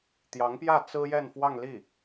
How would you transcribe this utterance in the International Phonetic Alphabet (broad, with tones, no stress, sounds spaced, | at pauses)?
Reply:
t̪ j ɑ˧˥ ŋ p j ä˥˩ t͡s ɹ̩˥ j ɛ˥˧ n f w ɑ˥˧ ŋ l i˥˩